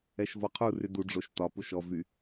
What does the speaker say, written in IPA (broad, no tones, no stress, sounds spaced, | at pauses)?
ɛ ʃ v ɔ qʰ u r y d u ɖ͡ʐ o ʃ t ɒ p u ʃ ɔ v y